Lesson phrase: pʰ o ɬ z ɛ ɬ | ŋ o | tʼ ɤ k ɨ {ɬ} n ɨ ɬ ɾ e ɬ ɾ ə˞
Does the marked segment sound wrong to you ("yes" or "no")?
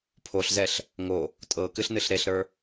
no